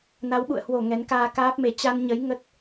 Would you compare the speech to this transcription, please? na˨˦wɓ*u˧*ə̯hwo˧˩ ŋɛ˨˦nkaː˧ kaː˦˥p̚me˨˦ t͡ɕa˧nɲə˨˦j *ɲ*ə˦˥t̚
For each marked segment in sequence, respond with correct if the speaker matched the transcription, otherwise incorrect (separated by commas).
incorrect, incorrect